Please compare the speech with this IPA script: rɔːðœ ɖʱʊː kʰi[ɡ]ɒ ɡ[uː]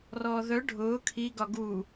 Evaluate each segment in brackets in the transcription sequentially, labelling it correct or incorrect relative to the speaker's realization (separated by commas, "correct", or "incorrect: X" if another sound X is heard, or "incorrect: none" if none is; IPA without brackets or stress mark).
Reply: correct, correct